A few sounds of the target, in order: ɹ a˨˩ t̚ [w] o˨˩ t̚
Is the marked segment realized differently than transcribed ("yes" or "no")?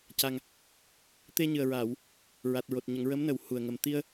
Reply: yes